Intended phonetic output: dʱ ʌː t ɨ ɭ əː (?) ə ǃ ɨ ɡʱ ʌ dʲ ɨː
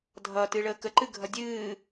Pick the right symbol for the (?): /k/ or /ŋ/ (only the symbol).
k